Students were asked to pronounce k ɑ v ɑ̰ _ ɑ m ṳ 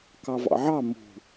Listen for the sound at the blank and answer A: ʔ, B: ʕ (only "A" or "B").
B